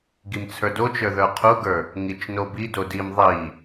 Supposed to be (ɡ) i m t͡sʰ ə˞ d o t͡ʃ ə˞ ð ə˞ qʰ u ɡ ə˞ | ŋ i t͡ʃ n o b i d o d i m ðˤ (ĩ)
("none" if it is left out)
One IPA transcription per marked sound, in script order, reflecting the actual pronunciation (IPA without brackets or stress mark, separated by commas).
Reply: ɡ, i